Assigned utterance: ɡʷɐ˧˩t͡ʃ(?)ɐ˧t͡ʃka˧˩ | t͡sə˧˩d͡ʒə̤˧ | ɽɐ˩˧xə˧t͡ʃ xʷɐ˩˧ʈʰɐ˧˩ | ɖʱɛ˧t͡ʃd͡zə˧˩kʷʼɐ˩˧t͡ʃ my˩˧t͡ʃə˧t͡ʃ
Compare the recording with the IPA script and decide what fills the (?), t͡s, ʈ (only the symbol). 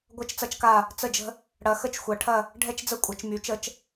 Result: t͡s